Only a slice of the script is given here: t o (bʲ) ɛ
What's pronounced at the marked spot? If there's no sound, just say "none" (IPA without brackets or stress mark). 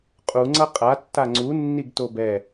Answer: b